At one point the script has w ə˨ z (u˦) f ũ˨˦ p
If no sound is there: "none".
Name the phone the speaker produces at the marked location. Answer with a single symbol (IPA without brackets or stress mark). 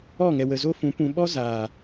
o˦